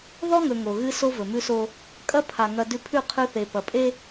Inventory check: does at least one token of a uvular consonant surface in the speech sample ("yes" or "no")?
yes